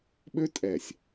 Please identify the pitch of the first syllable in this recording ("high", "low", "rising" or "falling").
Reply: high